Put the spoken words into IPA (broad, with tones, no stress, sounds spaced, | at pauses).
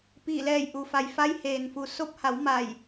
p iː˧˩ l ɛː˧˩ j ʔ u˩ f a˩ j f a˧˥ j h eː˩ n f u˩˧ s o˧˥ p̚ h a˩˧ w m a˧˩ j